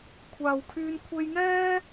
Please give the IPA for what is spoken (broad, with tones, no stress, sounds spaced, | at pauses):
kʷʰ aː˨ w kʰ yː˧ n kʷʰ e˧ j ŋ ɛː˥